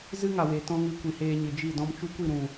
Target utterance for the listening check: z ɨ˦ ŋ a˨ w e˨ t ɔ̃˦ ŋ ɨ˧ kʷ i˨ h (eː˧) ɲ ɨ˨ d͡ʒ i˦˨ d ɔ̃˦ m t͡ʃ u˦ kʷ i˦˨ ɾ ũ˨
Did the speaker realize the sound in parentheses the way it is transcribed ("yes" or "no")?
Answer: yes